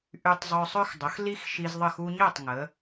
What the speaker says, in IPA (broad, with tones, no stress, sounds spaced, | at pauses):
ʔ y˧ tˤ zˤ œ˧ sˤ ø˧ x dˤ ə˩˧ x l i˧ x ʃ i˧ z ðˤ ə˥˩ x u˧ ɲ œ˥˩ tˤ ŋ ə˩˧